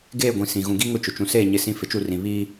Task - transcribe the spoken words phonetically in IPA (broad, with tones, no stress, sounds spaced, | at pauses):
ɡ eː˦˨ ɡʷ ĩ˨ s ĩ˨ ɣ ũ˨ ɡ i˦ ŋ ʊ˦˨ t͡ʃ ʊ˨ t͡ʃ ũ˨ s eː˦˨ ɲ ɪ˦ s ĩ˦ f ɪ˨ t͡ʃ u˦˨ r ĩ˨ β iː˦